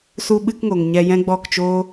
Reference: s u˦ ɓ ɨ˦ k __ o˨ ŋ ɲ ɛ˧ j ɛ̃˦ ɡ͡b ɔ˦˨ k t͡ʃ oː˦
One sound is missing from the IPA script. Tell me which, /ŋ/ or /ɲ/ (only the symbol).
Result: ŋ